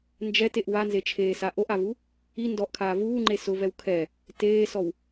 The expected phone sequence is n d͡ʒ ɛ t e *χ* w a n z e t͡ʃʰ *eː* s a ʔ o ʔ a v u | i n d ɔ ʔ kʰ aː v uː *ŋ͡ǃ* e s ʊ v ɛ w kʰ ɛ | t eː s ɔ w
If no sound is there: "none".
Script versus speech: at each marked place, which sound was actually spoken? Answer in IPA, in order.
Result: ʔ, eː, ŋ͡ǃ

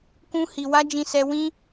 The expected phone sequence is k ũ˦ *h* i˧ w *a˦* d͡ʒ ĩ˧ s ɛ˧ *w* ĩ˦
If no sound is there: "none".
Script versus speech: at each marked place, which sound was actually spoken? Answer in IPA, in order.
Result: h, a˦, w

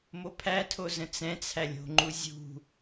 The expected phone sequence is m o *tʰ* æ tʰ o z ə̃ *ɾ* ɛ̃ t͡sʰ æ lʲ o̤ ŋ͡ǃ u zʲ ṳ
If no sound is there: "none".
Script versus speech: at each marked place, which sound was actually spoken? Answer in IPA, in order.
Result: pʰ, t͡s

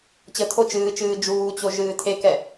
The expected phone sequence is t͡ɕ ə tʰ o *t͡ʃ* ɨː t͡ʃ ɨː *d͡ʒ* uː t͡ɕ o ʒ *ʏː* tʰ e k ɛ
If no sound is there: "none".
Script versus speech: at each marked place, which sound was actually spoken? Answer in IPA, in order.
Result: t͡ʃ, d͡ʒ, ɨː

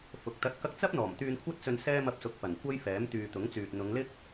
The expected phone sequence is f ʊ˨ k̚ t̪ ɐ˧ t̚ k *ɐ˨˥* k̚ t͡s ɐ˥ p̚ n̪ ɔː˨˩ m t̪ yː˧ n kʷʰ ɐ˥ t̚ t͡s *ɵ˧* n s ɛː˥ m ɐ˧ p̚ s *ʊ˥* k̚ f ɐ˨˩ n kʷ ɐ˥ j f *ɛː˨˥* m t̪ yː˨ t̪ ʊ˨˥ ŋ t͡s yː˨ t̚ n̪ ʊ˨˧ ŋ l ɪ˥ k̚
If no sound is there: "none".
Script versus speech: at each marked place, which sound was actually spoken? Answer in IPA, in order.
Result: ɐ˧, ɵ˧, ʊ˨, ɛː˨˥

